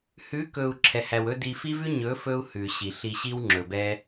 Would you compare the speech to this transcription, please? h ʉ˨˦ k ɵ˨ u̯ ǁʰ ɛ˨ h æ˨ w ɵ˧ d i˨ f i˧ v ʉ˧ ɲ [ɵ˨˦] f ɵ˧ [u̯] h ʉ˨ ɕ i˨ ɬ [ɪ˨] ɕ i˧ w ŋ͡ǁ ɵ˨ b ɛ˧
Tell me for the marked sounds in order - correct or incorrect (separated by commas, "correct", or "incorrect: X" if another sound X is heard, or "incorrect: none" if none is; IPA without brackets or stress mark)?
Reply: correct, correct, incorrect: i˨